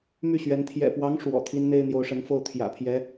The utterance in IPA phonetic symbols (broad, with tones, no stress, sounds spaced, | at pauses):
m y˥˩ ɕ ɥ ɛ˧˥ n t̪ʰ j ɛ̰˨˩ p w ɑ˧˥ ŋ ʂ w ɔ̰˨˩ t̪ʰ i˥ n n̪ e˥ ɪ̯ n̪ j o˧˥ ʊ̯ ʂ ə˧˥ n f o˥˩ ʊ̯ t̪ʰ j ä̰˨˩ pʰ j ɛ˧˥